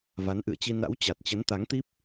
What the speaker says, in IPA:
v a˨˦ n ʔ ɨ̰˧˨ ə̯ t͡ɕ i˧ n a̰˧˥ w t͡ɕ a˨˩ t̚ t͡ɕ ə˨˦ n t̪ a˨˦ ŋ t̪ i˦˥ p̚

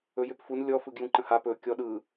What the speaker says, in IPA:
ɵ j ʏ p f u n lʲ ɔ f ɯ ɡ j ũ ǃ ə̃ h a p ɵ kʲ ɔ ɗ ɯ

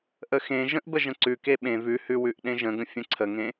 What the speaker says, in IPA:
ʔ ə x ẽ ʒ ə̃ ʔ b ə ʒ ə̃ ǀ ʉ k e ɓ ẽ v ʉ h ʉ w ʉ ʔ ɗ ẽ ʒ ə̃ ɡ ə̃ fʲ ə̃ ǀʰ ə ŋ ẽ

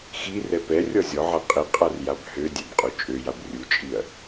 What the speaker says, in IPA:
x i r ɛ p ɛ rʲ ɔ zʲ ɔ ʕ a qʼ i qʼ a r j a b h ø dʲ ɛ b qʼ u t͡ʃʼ ø j a b rʲ u t͡ʃʼ i ɐ̯

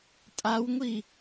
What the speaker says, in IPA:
tʼ a w ŋʷ i

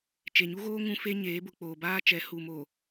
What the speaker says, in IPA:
t͡ʃ e˨ ɲ u˦ ɣ oː˦ ŋ ũ˦ f e˦ ɲ eː˨˦ b ʊ˨ k͡p oː˨ b aː˦ t͡ʃ ɛ˨˦ h u˨ m o˨

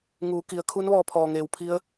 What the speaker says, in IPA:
ŋ uː˩˧ k i˩ ə̯ kʰ u˧˥ n ʋ ɔː˧ pʰ ɔː˩ ŋ eː˩ w pʰ i˧˥ ə̯

